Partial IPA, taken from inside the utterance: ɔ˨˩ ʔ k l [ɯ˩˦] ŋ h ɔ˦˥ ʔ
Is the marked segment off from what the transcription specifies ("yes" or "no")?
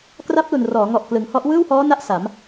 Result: no